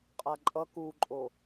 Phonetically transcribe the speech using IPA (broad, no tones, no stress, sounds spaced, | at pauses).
qʼ a ǃʼ ʌ k u ǃʼ o